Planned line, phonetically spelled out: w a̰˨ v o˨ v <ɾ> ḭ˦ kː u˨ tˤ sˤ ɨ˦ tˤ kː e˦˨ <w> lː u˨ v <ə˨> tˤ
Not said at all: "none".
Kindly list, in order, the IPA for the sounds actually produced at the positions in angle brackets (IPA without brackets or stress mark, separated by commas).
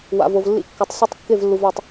lː, v, a˨